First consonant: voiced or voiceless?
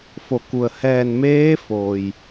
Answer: voiceless